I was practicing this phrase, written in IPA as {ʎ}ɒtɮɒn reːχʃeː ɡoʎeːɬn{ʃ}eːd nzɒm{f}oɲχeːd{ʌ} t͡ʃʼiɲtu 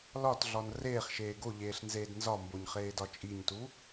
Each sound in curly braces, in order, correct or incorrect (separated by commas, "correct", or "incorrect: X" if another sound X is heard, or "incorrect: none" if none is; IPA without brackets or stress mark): incorrect: l, incorrect: z, incorrect: b, incorrect: ɒ